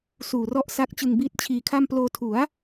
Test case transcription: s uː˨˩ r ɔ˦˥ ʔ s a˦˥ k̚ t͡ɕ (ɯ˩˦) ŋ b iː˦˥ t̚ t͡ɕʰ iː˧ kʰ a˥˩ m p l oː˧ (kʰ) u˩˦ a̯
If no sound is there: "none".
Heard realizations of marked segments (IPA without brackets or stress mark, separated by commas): ɯ˧, tʰ